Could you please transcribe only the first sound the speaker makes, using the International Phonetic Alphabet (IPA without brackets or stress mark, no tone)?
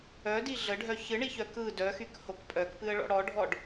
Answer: œ